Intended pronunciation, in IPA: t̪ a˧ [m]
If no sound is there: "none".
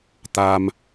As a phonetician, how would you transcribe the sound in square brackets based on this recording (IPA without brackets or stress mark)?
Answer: m